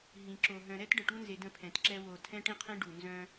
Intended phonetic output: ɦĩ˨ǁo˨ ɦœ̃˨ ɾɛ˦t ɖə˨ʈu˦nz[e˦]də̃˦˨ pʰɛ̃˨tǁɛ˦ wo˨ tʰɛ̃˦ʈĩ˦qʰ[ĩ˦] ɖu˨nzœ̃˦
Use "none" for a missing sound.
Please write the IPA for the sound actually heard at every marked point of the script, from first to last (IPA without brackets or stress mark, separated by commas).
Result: e˨, ẽ˦